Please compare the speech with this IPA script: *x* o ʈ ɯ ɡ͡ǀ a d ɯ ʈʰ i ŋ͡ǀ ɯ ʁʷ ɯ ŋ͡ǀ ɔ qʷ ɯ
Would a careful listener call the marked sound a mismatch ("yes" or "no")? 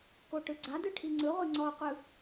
yes